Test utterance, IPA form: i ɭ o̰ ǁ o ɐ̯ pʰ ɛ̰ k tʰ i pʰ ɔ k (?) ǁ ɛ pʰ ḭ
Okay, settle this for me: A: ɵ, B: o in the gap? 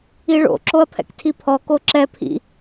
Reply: B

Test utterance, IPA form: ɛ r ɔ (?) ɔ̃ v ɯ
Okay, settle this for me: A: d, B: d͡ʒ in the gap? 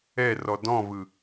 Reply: A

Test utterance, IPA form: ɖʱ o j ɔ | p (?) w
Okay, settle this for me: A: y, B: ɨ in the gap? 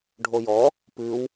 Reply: B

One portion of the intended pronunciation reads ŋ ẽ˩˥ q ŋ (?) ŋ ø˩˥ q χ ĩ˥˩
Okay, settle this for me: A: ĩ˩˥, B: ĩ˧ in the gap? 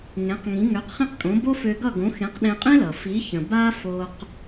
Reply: A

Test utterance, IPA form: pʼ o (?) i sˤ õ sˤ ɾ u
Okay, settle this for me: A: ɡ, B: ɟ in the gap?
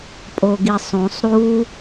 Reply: A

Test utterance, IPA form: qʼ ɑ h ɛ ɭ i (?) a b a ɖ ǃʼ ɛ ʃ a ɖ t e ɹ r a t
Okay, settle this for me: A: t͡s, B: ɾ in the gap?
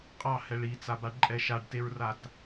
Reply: A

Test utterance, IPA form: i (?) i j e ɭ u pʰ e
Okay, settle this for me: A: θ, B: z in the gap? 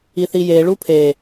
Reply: A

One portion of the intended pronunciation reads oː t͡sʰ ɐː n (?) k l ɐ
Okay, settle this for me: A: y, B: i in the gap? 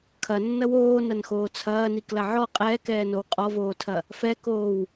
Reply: B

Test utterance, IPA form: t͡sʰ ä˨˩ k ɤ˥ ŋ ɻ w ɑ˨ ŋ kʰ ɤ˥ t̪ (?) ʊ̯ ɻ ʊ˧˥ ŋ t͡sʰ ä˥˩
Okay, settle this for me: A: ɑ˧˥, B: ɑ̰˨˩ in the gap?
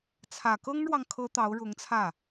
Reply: A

